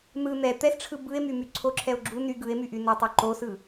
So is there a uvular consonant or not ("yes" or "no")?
no